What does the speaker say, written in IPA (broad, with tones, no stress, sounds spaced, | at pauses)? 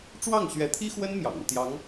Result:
ʈ͡ʂ w ɑ˥˩ ŋ ɕ ɥ ɛ˧˥ t̪ʰ i˥ x w ə˥ n m j ɑ̰˨˩ ŋ u˥˩ t̪ j ɑ˧˥ ŋ